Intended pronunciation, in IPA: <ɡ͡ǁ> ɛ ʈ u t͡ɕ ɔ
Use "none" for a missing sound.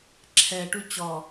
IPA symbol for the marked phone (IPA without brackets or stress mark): ǁʰ